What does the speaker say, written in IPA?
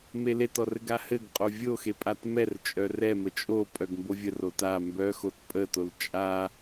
m e l e t ɔ r ɘ ɡ a h ɘ ɡ qʼ o vʲ o x e pʼ a t m ɛ r t͡ʃʼ œ r ɛ m ə t͡ʃʼ o pʼ œ ɡ m b o vʲ ə r o t a m b œ x o t pʼ ə t o l t͡ʃʼ a

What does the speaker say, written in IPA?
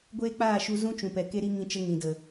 ɡʷ eː˦ k͡p aː˦˨ ʃ u˧ z ũ˦ t͡ʃ ũ˨ p ɛ˨ k e˦ ɾ i˦ ŋ ĩ˧ t͡ʃ ə˧ ŋ ĩ˨ d ə˨

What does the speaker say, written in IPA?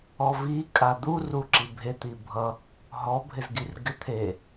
ɔ v i kʼ a d̪ u r u ǁ i bʱ e t̪ i bʱ ʌ | ɦ ɔ bʱ ɪ z ɡ i r ɡ ɪ t̪ʰ e

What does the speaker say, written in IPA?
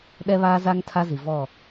ɗ ɛ˦ β aː˦ z a˦ ŋ tʰ a˦ z i˨ v ɔ˦˨

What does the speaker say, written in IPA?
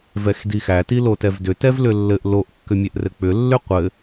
v ɛ x d i x æ t i l o t ɛ v d ʏ t ɛ v l ʏ lː ɘ ʔ l o ʔ kː ʏ mʲ ɛ ʔ r ɘ k͡p ʏ lː ʏ qʷ ɘ

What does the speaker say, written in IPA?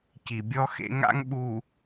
c i˨ bʲ ɔ˦ x ḛ˦ ŋ a̰˦ ŋ ɓ u˨

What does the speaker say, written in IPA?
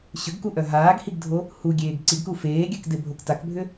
ɕ ʏ ɡ k u ʔ œ ɦ aː ɡ h i ɡ dʱ o | h u ɡʲ eː ɡ ǀ i ɡ k u f eː ɡʲ œ k d e bʱ o k t a k bʱ ʏ

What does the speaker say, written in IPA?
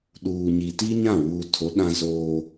ɗ uː˨ ɲ i˨ t i˦ ɲ ã˦˨ w uː˨ tʰ o˨˦ ɗ ã˦ z oː˦

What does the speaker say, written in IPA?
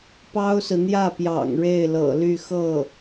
p ɑ˥ ʊ̯ s ɹ̩˨ n̪ j ä˥˩ p j ɑ̰˨˩ ŋ ɻ e˥˩ ɪ̯ l ɤ̰˨˩ l y˥˧ x ɤ˥˩

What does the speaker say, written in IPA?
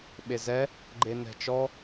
ɓ e z ɛ | ɡ͡ǃ e n ɛ̤ t͡ʃ ɔ

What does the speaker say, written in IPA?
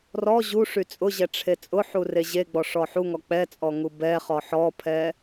r ɔ ʑ u ʂ y t͡sʼ ʊ ʑ ɛ ʈ͡ʂʰ e t͡sʼ ʊ ħ u r e ʑ e ɡ͡b ɔ ʂ ɔ ħ u ŋ ɔ k͡p ɛ t͡sʼ ɔ ŋ u b ɛ χ ɔ ħ ɔ pʰ ɛ

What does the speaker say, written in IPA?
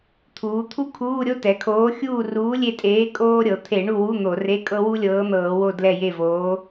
t̪ʰ uː˩˧ t̪ʰ u˥ kʰ uː˧˥˧ ɾʲ o˥ t ɛ˩˧ kʰ oː˨˥ xʲ uː˦˨ r uː˨˥ lʲ e˦˨ tʼ eː˨˥ kʼ oː˥ ɾʲ ɤ˩˧ t̪ʰ e˧˩˧ ɳ u˦˨ w u˧˥˧ n̪ o˧˩˧ r e˧˥˧ kʼ ɤ˥ w u˥ lʲ ɤː˨˥ n̪ ɤː˧˩˧ w o˦˨ d l ɛ˦˨ j e˦˨ v oː˨˥

